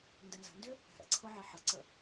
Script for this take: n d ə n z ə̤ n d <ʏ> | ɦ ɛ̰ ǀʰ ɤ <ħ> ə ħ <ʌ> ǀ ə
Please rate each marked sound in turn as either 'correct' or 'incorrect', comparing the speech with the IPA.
correct, incorrect: ʕ, correct

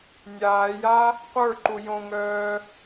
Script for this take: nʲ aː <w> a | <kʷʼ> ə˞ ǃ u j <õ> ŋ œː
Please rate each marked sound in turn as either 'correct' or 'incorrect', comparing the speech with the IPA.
incorrect: j, incorrect: qʷ, correct

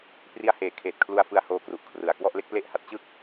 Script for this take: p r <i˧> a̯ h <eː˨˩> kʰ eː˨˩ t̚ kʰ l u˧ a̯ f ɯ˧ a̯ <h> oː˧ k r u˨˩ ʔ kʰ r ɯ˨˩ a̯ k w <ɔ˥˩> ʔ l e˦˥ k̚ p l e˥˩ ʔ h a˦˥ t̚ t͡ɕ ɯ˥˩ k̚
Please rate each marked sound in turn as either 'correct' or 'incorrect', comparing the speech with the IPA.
correct, incorrect: eː˩˦, correct, correct

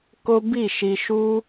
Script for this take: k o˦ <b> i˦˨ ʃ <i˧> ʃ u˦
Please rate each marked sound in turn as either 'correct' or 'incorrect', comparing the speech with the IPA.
correct, correct

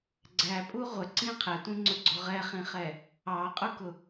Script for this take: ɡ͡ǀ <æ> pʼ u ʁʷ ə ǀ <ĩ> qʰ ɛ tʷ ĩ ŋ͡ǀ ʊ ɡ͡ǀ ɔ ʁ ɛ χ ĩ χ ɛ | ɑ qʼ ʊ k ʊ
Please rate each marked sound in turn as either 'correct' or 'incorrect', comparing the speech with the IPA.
correct, correct

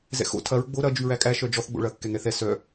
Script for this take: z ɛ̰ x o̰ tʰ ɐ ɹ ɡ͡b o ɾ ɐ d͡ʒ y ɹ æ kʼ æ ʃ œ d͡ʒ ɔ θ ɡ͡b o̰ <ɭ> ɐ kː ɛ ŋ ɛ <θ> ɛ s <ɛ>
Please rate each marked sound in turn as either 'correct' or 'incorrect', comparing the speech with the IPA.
correct, correct, incorrect: œ

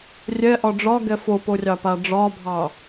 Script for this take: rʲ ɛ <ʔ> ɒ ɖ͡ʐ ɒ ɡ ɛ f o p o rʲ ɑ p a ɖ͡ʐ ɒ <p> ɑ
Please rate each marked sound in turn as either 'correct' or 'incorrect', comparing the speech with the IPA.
correct, incorrect: bʱ

